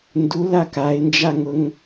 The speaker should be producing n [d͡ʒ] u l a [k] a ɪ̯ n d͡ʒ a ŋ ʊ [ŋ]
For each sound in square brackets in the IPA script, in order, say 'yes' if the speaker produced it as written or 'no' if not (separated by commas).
no, yes, yes